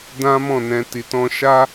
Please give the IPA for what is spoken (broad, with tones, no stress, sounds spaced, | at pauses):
d ã˦ m ɔ̃˦˨ n ɛ̃˧ t i˨ t ɔ̃˧ ʃ a˦